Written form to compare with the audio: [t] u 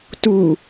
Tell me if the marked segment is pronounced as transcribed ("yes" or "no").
yes